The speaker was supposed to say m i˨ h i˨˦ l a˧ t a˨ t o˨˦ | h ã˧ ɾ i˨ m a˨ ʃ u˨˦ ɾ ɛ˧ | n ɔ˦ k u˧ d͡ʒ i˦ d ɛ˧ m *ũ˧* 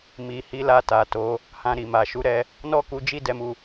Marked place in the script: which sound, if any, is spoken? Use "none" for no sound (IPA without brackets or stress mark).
u˧